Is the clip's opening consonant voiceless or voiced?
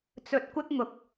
voiceless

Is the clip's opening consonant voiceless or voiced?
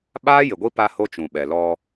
voiced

